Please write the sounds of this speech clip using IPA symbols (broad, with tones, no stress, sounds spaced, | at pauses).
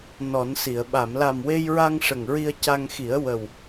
n ɔ˨˩˦ n s i˨˩˨ ə̯ ɓ a˨˩˨ m l a˨˩ m w e˧ j ɹ a˧ ŋ ʂ ə˨˩ ŋ ɹ i˧ ə̯ c a˧ ŋ x i˨˩˦ ə̯ w ə˨˩ w